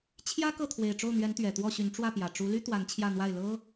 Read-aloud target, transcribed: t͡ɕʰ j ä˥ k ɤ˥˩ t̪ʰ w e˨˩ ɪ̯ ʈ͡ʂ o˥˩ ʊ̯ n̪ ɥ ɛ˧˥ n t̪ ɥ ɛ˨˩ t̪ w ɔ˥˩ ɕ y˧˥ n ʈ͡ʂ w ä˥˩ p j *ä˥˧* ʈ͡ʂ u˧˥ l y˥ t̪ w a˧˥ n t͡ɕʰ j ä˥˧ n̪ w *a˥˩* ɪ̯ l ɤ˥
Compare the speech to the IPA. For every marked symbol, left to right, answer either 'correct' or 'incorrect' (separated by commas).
incorrect, correct